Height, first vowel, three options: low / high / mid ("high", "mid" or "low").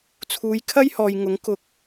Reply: high